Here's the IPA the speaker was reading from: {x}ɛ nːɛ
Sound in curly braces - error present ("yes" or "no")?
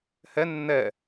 yes